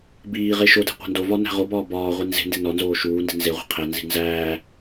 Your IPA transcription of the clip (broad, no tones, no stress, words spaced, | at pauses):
biːʁe ʃode̤ qʷæ̤ndovɒ næ̤ʁobɒː bɒːʁʷi nze̤nde nɒnzoː ʃuːndi̤ nze ʁʷe̤qʰænzi̤ nzæː